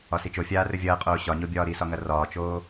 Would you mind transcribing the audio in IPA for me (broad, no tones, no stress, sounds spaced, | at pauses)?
ɒ s i t͡ʃ o fʲ aː r ɵ vʲ ɐː qʼ oː ɕ ɒ ɲ o bʲ ɒː ɾ i s ɒ ŋ ɐ r ɒː t͡ʃ oː